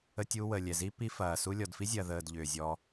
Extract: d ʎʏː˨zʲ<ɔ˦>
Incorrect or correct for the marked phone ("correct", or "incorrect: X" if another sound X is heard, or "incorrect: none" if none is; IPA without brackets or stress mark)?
incorrect: ɔ˧